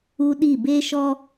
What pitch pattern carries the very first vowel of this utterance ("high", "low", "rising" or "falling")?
high